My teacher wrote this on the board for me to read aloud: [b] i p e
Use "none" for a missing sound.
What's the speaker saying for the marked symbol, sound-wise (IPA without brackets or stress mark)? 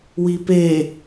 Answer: w